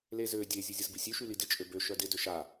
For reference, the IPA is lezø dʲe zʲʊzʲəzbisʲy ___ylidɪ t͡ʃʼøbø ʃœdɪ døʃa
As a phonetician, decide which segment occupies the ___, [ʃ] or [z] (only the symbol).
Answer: ʃ